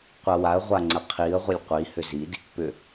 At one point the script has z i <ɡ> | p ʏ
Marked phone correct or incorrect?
incorrect